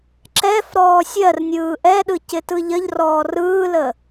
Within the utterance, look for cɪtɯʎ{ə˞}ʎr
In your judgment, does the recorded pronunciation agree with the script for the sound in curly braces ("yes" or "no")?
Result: no